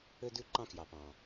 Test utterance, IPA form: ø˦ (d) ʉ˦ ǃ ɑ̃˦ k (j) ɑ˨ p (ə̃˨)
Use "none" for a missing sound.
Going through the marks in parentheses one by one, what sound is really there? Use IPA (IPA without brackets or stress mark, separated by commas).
d, j, ɑ̃˨